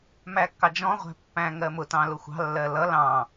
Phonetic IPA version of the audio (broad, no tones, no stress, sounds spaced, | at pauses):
m æ kː ɑ d͡ʒ ɔ̃ ʁʷ æ̤ pː æ̃ ŋ ɜ m ʊ t ɑ̃ l ʊ xʷ ɑ̤ lː ɜ l ʌ l ɑ̃